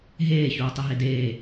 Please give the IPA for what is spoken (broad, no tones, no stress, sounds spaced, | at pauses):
ɦ eː ç uː tˤ e ɦ e d eː